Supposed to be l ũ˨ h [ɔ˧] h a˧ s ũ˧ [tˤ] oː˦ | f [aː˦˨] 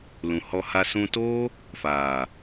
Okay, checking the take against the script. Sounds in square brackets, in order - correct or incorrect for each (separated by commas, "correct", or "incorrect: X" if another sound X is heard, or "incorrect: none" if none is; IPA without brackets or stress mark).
correct, incorrect: t, incorrect: aː˨